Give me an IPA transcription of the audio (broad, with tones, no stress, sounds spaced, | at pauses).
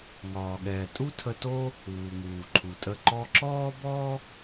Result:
ŋ ɒː˨ ɠ ɛː˨ tʼ u˦ tʰ ə˧ t o˦ | uː˨ ŋ uː˨ ǃʰ u˨ tʼ ə˦˨ ǃ ɔ˧ ǁ ɔː˦ b ɔ˦